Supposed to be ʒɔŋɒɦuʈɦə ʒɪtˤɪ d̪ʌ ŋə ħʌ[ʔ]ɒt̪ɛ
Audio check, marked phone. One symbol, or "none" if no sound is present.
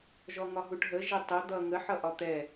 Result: ʔ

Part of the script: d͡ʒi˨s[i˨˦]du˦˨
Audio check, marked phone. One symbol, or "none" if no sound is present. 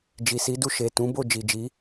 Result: i˨˦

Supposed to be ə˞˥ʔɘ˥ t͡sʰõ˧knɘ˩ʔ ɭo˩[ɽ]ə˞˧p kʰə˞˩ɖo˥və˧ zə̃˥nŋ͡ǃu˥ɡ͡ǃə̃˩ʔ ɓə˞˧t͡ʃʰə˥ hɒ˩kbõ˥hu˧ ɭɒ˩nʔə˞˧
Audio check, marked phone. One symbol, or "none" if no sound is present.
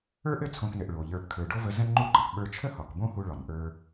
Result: ʎ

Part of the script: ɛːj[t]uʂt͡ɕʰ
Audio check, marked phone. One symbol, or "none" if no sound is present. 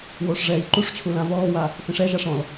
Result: ǃ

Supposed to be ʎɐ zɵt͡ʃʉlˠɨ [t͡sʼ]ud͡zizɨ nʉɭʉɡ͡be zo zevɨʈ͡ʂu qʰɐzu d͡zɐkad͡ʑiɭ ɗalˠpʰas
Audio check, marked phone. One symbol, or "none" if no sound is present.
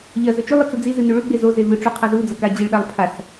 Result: t͡s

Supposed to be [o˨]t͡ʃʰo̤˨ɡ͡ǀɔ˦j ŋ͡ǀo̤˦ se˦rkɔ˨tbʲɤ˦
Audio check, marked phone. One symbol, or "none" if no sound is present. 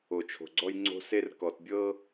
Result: o˨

